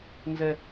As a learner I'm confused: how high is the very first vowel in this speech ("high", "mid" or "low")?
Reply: mid